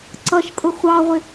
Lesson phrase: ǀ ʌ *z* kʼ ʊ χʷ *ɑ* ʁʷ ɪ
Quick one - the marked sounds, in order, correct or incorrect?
incorrect, correct

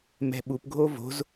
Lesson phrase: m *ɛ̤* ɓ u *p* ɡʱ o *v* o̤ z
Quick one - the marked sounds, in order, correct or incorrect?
correct, correct, correct

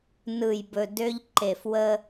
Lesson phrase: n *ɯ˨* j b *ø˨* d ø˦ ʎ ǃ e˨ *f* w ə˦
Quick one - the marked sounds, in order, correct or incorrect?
correct, incorrect, correct

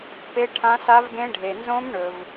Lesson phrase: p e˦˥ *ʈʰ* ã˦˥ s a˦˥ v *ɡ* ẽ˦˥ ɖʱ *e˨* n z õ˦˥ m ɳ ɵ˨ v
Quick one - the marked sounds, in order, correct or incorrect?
correct, correct, correct

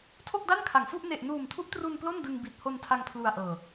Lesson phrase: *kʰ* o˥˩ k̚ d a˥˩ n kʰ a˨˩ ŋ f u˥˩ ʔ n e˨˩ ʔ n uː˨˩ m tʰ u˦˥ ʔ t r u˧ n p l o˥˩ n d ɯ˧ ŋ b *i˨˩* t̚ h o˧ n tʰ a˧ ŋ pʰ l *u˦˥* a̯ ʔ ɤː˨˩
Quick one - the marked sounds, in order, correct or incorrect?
incorrect, correct, incorrect

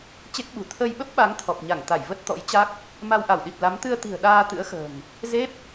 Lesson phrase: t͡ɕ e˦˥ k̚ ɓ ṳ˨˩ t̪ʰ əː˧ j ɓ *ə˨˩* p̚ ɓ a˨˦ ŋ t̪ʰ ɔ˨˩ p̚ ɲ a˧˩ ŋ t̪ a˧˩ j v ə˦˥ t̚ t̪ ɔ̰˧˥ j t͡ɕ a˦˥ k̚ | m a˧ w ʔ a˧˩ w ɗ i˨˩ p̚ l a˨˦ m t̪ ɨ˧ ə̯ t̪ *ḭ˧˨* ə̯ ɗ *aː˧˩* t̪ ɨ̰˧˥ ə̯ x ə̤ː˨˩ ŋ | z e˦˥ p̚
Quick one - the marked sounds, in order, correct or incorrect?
incorrect, incorrect, incorrect

